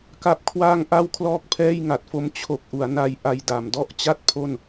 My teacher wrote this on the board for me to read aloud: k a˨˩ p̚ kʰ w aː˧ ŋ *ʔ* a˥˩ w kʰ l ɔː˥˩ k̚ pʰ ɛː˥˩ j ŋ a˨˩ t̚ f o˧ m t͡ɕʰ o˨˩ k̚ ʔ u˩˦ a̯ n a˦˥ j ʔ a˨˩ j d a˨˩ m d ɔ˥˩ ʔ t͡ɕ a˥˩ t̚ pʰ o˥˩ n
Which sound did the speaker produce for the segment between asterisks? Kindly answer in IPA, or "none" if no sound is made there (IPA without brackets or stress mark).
ʔ